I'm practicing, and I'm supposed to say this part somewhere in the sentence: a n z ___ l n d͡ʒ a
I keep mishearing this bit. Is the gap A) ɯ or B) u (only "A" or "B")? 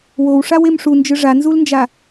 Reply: B